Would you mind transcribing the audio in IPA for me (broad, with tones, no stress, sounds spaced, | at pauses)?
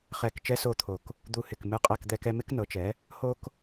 χ ɛ˧˩ k t͡ʃ ɛ˥ s o˥˧ t̪ʰ o˧˩ k | d̪ u˧˩ h ɪ˧˩ k m ɨ˥˧ qʼ ɛ˥˧ k d̪ ɛ˥ k ɛ˥ m ɪ˥ k n ɤ˩˥ t͡ʃ ɛ˩˥ | h o˥ k